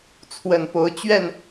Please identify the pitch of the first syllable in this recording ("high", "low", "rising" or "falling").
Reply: low